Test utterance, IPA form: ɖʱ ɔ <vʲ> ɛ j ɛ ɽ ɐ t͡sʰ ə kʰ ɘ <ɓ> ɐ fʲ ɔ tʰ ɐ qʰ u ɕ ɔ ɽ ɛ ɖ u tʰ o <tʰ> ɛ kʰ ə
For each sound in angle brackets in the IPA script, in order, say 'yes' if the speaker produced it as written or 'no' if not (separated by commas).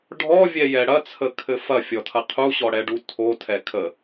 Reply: yes, no, yes